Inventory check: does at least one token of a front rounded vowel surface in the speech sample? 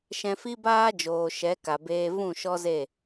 no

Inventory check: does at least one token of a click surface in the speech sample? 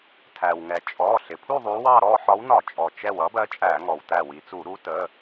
no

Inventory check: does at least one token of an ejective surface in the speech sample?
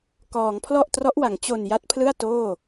no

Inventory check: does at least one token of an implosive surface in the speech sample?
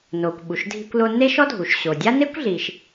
yes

